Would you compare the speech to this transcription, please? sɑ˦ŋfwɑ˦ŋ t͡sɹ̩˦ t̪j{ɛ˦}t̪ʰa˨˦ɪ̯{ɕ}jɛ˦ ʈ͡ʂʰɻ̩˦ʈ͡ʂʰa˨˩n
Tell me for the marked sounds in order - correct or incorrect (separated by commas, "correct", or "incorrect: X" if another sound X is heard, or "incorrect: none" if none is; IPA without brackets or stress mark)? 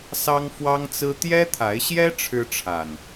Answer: correct, correct